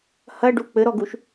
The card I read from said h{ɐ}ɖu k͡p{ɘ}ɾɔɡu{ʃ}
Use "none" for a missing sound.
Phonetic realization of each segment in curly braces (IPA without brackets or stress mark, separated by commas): ɐ, ɘ, ʃ